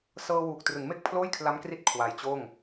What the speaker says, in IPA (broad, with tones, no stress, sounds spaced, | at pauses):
s ɤː˧ w uː˨˩ k̚ t r ɯ˩˦ ŋ m e˦˥ k̚ pʰ l oː˥˩ j kʰ l a˦˥ m k r i˦˥ t̚ kʰ w a˧ j t͡ɕ oː˥˩ ŋ